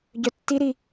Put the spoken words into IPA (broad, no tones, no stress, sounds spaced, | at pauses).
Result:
ɟ œ tː i ɾ i